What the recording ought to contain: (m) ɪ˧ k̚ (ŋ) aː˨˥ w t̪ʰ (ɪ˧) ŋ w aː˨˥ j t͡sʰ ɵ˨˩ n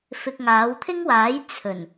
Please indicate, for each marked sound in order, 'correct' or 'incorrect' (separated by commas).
incorrect, correct, incorrect